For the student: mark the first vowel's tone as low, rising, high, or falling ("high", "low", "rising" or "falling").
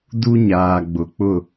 high